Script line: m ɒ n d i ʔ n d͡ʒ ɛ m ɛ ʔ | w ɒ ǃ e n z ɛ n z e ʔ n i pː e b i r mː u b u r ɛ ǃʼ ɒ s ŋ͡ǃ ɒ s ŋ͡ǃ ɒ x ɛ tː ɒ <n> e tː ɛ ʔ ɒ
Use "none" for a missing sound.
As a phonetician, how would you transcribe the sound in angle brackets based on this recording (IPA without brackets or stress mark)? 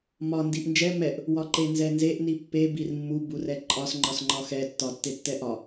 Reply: tː